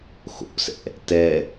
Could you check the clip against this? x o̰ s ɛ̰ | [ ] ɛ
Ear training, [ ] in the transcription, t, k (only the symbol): t